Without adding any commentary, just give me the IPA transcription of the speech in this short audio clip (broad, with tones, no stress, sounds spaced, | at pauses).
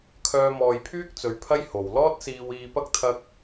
kʰ œː˧ m ɔː˨ j pʰ yː˥ k̚ t͡s ɵ˨˧ ɥ pʰ ɐ˥ j h o˨ w l ɔː˥ t̚ s iː˧ w iː˧ p ɐ˥ k̚ t̪ʰ ɐ˥ k̚